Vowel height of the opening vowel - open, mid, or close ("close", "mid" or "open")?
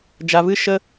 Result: open